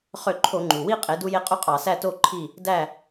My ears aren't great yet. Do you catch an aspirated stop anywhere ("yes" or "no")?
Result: yes